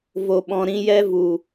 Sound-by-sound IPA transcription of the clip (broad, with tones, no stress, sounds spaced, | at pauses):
v o˨ ɓ ɔ̃˨ ɾ ĩ˧ j ɛ˦ v u˨